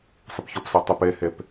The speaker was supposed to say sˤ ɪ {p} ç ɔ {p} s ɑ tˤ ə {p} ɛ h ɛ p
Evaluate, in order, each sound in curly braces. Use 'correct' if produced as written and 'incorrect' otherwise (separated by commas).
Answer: correct, correct, correct